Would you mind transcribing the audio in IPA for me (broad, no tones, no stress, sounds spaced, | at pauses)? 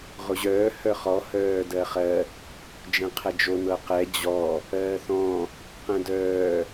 ʁ o ʑ œː h œ χ ɔ h œː d ɜ χ ɜ | d͡ʒ ɛ̃ qʰ ɛ d͡ʒ o n ɤ q ɛ d͡ʑ ɔ | ɜː θ ɔ̃ | q ɛ̃ d œː